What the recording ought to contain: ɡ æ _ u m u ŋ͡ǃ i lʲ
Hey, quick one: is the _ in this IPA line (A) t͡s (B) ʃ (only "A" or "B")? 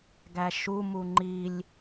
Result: B